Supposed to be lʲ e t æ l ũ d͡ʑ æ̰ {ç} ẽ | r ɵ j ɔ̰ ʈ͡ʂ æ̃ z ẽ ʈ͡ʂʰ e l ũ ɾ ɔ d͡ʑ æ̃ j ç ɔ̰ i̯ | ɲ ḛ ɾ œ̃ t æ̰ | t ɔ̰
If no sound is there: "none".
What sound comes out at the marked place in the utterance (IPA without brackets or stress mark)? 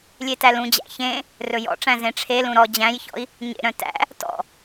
ç